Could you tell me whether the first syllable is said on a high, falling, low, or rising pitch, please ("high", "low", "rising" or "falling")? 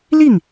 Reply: falling